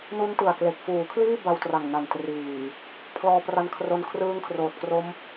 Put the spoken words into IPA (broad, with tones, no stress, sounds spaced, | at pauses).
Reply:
n u˦˥ n t ɯ˨˩ a̯ k l e˨˩ k̚ f uː˩˦ kʰ l iː˥˩ b a˧ w t r a˨˩ ŋ n a˨˩ n t r iː˨˩ | pʰ l ɔː˧ p r a˧ n kʰ r o˧ n kʰ r ɯː˦˥ ŋ kʰ r oː˨˩ t̚ k r o˦˥ m